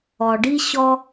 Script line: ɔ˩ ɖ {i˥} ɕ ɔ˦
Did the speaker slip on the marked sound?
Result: no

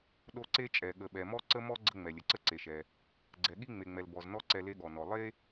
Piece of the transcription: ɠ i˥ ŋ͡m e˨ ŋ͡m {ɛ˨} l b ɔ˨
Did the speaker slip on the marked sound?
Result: no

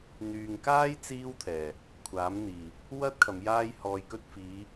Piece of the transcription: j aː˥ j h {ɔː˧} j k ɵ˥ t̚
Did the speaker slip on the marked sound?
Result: no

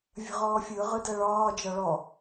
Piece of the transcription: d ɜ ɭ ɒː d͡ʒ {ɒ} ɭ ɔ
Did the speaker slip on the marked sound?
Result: no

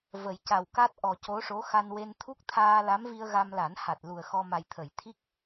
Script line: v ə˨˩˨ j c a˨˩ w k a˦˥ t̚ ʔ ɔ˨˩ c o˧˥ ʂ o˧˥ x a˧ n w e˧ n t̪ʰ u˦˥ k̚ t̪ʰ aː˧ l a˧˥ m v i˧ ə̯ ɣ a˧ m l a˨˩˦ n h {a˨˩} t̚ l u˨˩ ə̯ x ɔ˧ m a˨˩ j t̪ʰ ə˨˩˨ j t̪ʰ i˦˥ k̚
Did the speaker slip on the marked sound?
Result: no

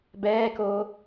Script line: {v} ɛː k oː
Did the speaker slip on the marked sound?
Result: yes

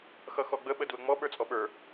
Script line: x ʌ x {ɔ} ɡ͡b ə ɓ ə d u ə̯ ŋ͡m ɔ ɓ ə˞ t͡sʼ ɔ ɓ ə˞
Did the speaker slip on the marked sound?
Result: no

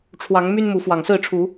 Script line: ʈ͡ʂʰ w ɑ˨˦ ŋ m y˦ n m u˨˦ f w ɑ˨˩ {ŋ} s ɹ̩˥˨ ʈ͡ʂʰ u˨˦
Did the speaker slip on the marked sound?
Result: no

